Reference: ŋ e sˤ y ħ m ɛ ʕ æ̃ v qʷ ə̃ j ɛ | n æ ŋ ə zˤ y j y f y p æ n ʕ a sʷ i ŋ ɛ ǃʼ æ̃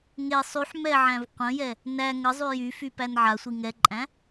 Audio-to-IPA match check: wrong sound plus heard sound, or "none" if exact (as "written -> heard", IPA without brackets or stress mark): none